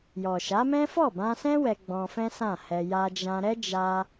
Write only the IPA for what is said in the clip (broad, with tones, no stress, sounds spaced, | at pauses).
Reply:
j ɔ˨ ʃ a˨˦ m ɛ̃˦ f ɔ˦˨ b ã˧ s ɛ̃˦ w ɛ˧ ɡ͡b ɔ̃˧ f ɛ̃˦ s ã˦˨ h ɛ˧ j a˧ d͡ʒ ã˧ ɾ ɛ˦ d͡ʒ a˧